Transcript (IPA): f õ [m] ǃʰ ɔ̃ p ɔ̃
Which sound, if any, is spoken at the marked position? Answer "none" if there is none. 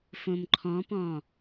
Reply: m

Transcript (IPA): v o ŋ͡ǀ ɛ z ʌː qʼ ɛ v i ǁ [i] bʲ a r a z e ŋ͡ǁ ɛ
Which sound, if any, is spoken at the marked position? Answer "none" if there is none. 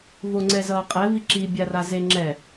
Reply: i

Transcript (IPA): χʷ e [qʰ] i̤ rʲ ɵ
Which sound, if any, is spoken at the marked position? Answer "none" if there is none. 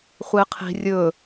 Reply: qʰ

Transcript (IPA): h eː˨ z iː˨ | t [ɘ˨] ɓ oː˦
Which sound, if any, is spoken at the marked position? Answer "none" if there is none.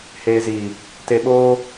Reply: e˨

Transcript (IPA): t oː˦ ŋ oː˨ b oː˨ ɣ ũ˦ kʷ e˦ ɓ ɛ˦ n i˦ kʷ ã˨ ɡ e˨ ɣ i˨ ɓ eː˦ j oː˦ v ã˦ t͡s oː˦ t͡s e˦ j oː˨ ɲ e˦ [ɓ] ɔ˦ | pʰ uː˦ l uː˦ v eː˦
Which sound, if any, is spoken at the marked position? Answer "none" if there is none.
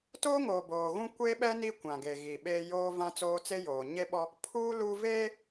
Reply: ɓ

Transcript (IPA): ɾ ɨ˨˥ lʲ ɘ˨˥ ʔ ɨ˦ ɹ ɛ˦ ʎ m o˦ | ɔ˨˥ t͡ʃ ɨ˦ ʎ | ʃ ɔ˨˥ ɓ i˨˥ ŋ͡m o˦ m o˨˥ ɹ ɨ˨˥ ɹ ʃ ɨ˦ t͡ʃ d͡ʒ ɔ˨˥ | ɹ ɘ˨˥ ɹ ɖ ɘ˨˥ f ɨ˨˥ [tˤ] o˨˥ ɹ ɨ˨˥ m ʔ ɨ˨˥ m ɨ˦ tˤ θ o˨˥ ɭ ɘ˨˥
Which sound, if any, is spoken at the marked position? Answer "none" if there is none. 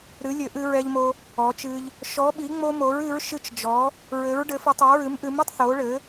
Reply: tˤ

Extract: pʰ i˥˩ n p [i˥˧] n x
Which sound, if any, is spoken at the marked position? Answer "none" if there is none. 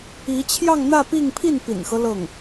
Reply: ḭ˨˩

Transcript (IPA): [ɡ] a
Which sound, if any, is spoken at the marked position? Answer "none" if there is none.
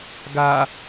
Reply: ɡ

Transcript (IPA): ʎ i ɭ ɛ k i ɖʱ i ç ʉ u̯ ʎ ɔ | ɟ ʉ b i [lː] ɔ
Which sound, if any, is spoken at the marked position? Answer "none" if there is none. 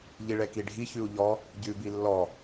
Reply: lː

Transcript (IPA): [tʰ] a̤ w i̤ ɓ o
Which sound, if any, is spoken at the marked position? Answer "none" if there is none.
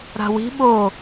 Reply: ɾ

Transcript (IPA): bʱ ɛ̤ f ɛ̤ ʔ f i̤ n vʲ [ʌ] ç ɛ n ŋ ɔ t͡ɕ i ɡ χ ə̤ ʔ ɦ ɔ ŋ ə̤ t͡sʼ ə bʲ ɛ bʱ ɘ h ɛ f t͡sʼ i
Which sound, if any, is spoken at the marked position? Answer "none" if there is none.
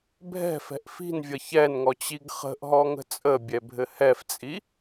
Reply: ʌ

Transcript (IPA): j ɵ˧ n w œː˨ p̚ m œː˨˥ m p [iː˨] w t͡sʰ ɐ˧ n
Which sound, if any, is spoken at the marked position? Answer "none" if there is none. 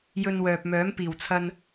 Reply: iː˨˩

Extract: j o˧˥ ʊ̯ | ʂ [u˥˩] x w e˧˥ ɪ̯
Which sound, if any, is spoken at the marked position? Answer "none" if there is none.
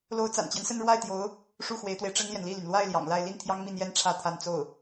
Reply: u˥˩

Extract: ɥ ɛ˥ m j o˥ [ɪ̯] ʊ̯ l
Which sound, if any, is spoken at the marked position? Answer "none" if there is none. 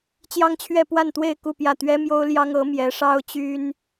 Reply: none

